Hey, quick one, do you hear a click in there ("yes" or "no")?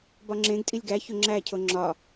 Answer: yes